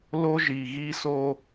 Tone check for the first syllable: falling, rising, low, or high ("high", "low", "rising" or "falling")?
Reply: high